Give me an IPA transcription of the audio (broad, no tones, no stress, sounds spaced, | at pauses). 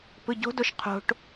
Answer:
p ɯ ɟ o̤ d o ʃ qʰ o̤ ʈ